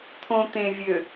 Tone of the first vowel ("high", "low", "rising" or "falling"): low